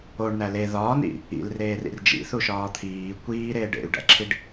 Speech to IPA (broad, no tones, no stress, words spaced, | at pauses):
oɳnæ le ðɒːnḭ | ḭlreːrḭr d͡ʒḭθuʃɒː t̪ʰiː kʷiːɾeː ɖḛy̯ɖæ̰ǁʰiɖ